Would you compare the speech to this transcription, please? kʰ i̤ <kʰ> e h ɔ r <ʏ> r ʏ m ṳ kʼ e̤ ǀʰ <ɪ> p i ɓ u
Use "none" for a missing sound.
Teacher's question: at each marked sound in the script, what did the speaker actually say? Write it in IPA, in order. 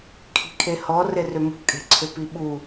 kʰ, ɪ, ʏ

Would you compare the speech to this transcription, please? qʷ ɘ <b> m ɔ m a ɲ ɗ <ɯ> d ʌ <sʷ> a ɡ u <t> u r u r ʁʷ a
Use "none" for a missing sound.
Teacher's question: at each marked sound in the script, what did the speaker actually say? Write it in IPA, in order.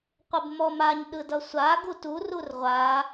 b, ɯ, sʷ, t

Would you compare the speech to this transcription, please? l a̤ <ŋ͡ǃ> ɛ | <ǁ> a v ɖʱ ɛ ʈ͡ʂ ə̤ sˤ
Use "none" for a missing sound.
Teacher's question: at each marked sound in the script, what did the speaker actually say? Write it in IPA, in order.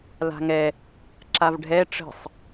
ŋ, ǁ

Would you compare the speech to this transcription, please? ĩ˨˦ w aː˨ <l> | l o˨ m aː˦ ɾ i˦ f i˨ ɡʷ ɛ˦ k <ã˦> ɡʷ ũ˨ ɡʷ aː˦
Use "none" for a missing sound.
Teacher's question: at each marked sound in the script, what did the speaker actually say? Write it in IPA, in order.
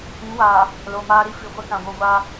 none, ã˨

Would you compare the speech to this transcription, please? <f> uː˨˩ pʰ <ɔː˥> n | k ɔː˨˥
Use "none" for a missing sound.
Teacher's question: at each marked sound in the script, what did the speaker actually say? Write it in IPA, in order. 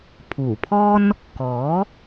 pʰ, ɔː˥

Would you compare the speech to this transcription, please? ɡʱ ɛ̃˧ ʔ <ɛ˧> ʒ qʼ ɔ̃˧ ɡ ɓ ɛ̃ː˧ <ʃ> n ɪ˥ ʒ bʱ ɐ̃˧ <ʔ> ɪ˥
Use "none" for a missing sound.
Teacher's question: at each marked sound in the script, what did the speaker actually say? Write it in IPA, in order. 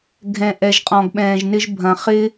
ɛ˧, ʒ, χ

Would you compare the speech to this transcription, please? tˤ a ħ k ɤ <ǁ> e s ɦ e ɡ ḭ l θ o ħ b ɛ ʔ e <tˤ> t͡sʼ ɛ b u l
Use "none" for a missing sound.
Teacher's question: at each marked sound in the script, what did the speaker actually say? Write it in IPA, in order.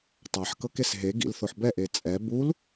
k, none

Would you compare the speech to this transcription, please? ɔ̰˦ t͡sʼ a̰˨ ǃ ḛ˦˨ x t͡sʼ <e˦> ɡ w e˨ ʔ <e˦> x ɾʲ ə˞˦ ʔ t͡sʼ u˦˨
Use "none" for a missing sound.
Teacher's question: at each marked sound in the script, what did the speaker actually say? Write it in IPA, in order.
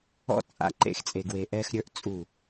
e˨, ɛ˦

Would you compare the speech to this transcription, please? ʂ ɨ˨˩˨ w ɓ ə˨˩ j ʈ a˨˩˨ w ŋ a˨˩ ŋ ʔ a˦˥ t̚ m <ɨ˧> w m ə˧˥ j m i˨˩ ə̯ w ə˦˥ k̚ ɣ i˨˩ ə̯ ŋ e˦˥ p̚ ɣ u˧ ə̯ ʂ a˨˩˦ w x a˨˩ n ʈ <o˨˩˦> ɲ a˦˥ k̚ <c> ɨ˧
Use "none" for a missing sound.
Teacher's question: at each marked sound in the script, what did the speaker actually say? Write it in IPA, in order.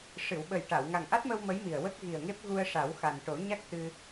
ə˧, o˨˩˦, t̪

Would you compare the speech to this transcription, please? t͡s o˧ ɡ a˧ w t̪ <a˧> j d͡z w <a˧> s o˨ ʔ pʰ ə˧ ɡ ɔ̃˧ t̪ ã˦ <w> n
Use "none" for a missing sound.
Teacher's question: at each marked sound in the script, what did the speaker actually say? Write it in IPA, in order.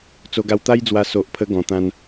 a˦, a˧, none

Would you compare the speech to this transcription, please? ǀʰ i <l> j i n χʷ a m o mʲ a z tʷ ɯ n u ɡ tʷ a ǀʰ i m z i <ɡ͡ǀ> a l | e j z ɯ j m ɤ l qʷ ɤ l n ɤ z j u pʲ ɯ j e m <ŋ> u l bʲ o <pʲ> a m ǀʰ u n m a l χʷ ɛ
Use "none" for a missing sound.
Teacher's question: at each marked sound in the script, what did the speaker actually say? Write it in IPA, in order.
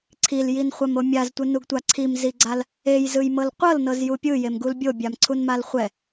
l, ɡ͡ǀ, ɡ, bʲ

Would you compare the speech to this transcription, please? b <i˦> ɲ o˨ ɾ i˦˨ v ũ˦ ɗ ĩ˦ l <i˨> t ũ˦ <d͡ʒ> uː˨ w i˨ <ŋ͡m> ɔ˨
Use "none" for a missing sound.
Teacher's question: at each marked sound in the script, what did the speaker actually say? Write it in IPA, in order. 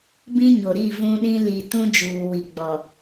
ĩ˦, i˨, d͡ʒ, ɡ͡b

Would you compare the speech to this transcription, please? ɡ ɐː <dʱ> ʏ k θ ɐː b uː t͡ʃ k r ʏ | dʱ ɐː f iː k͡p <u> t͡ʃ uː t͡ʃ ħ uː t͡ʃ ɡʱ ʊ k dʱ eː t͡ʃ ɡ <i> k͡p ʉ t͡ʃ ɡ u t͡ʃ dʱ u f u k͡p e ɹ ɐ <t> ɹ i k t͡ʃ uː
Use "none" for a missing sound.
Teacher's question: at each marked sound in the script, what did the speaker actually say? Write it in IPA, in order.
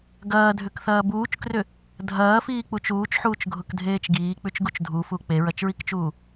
dʱ, u, iː, t͡ʃ

